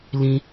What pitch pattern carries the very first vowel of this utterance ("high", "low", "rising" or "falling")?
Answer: low